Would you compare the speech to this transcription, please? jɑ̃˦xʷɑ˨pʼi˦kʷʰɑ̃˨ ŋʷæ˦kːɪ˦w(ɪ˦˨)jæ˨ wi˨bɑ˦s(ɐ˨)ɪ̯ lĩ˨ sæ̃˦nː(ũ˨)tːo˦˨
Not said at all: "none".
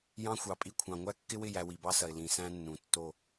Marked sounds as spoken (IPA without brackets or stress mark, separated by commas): ɪ˦˨, ɐ˨, ũ˨